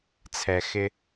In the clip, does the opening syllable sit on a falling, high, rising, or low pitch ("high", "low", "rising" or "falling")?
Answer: low